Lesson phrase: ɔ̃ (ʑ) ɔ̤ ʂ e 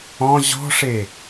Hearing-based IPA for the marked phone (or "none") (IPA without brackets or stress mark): ʑ